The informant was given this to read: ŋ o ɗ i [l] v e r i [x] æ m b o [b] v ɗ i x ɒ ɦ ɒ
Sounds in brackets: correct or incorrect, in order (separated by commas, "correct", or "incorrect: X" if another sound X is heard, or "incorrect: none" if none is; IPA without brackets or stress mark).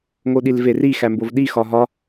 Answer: correct, correct, incorrect: none